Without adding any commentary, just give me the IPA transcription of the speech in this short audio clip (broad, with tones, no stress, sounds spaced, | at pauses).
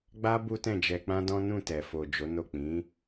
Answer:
ɡ͡b a˦ b u˦ t ɛ̃˦˨ d͡ʒ ɛ˧ k͡p ã˦ d ɔ̃˦ n ũ˦˨ t ɛ˨ f o˨ d͡ʒ o˨˦ n o˦˨ k͡p ĩ˨˦